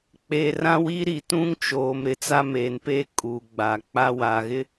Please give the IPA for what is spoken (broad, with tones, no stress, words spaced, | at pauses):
k͡peː˨rã˦wi˦ ɾi˨tũ˦ŋt͡ʃoː˨m ɾɪ˨t͡sa˦meː˨npe˦ kʼu˨ɡ͡ba˨ k͡pa˦waː˨ɣɪ˦